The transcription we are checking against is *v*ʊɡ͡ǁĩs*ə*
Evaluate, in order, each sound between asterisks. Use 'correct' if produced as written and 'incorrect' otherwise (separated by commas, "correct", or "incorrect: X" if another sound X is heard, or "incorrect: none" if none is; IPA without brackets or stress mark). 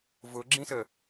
correct, correct